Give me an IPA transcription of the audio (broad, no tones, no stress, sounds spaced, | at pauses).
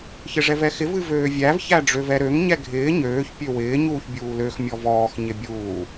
ç ɪ ʐ ɛ v ɛ x ɪ v ɨ v øː vʲ æ v ç æ ɖ͡ʐ ø v ɛ ɾ ø ŋ ɲ ɛ ɡʱ ɪː ɲ øː ç pʲ ø w ɪː ɲ uː ç bʲ uː l ø x mʲ ɔ v ɔː x ɲ ɪ bʲ uː